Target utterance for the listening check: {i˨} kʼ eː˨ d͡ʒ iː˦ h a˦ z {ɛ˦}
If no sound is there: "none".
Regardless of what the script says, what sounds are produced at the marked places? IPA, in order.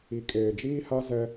i˨, ɛ˦

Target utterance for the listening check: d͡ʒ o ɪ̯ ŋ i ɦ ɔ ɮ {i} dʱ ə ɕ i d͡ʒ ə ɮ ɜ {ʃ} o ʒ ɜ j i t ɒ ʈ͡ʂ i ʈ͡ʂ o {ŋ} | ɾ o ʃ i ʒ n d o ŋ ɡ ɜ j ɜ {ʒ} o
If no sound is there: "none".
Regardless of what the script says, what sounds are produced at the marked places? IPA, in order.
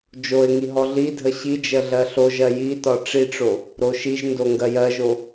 i, ɬ, none, ʒ

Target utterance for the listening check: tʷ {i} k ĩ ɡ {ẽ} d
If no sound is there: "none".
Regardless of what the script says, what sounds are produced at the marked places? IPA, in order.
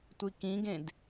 i, ẽ

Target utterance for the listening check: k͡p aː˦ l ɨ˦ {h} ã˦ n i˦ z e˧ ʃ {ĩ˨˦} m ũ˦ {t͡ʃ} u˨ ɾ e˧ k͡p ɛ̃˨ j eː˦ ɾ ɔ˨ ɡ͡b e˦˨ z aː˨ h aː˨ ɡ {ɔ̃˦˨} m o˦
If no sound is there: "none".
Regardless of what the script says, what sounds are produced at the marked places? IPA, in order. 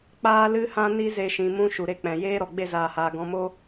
h, ĩ˨, ʃ, ɔ̃˧

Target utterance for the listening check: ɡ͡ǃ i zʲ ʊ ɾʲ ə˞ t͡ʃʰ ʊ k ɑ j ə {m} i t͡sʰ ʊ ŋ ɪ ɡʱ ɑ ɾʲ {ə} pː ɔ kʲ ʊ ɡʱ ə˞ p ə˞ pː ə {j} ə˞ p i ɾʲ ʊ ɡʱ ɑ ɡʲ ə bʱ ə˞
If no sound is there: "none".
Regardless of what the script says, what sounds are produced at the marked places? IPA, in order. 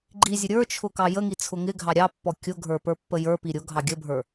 ŋ, ɑ, j

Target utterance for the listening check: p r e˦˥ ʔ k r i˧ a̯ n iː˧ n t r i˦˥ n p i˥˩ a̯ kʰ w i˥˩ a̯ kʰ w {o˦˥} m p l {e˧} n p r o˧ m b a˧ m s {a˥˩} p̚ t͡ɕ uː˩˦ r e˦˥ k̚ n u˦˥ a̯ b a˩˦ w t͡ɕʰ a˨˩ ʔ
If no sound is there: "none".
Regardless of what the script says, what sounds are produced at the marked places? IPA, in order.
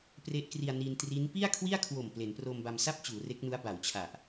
o˨˩, e˩˦, a˥˩

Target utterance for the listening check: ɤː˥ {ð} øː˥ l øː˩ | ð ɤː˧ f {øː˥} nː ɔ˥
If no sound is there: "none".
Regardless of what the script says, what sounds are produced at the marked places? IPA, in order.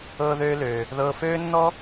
ð, øː˥

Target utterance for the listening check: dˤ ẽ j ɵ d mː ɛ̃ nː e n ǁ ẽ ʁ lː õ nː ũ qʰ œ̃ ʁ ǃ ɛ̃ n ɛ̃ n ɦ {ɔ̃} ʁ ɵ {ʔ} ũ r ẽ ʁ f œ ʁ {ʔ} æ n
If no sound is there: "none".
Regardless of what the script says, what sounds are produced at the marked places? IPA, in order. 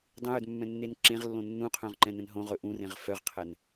õ, ʔ, qʰ

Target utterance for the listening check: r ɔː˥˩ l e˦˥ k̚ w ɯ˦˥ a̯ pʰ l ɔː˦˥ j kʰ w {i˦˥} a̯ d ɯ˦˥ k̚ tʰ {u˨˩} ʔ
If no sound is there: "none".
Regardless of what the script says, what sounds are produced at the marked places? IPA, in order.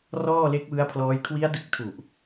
i˦˥, u˨˩

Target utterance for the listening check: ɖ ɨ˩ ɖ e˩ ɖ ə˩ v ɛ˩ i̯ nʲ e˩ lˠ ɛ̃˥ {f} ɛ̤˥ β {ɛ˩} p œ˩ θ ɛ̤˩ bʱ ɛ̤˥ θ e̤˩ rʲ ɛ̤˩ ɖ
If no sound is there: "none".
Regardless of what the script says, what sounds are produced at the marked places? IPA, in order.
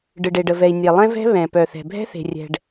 v, ɛ̃˩

